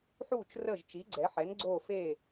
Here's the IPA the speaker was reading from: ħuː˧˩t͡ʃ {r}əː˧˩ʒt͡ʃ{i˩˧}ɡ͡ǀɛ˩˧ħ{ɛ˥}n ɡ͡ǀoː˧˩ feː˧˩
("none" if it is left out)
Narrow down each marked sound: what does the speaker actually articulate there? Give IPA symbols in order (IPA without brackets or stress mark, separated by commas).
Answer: r, i˩˧, ɛ˩˧